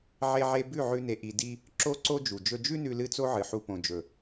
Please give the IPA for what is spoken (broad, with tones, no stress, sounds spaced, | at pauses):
ʕ e˦ ʕ e˦ b ʉ˦˨ ʕ ʉ˧ n e˨ ʔ i˨ d i˦ | ǁ o˦ ǀ o˦ d͡ʒ u˨ d͡ʒ ɵ˧ d͡ʒ ʉ˦ n ʉ˧ l ɨ˦˨ t͡s o˦ ʕ ɨ˨ ħ u˧ p õ˨ d͡ʒ ɵ˨